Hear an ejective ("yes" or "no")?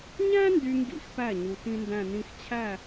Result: no